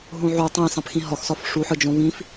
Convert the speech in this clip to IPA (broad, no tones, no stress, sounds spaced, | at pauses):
ɦ õ ʕ o tˤ ẽ s ɑ̃ p x ĩ ɦ ɒ x s ɒ f ʂ u ħ ɯ d͡ʒ õ β ĩ f